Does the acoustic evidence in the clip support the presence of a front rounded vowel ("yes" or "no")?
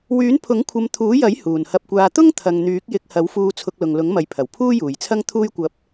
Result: yes